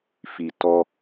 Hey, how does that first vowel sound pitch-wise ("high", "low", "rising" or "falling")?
low